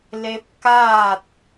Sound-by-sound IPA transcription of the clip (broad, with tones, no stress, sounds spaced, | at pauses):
l e˧ p̚ k aː˥˨ t̚